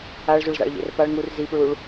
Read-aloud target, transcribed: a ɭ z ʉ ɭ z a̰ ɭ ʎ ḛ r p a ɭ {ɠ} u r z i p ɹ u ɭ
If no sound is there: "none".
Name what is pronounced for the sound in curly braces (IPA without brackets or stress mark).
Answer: ŋ